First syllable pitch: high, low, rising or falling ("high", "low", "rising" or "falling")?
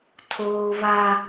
high